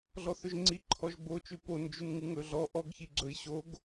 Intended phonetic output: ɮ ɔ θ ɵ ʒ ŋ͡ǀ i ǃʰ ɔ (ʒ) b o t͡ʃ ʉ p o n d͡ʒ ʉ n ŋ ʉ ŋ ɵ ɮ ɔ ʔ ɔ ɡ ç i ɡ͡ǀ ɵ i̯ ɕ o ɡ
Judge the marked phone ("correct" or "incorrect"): correct